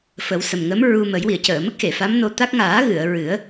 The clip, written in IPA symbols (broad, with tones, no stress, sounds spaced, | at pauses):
f ə˨˩˦ w s ə˨˩ m ŋ ə˧˥ m ɹ u˧ m ə˨˩˦ j w i˨˩˨ ə̯ c əː˨˩˨ m ə˦˥ k̚ x e˨˩˨ f a˧˥ m n o˧ t̪ a˦˥ k̚ ŋ aː˨˩˦ ɣ ɨ˨˩˨ ə̯ ɹ ɨ˨˩˦ ə̯